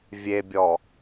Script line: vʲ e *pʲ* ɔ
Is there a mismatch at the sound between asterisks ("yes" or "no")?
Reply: yes